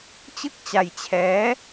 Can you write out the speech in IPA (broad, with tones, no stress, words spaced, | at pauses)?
t͡ɕɯ˥˩k̚t͡ɕa˧jt͡ɕʰɛː˦˥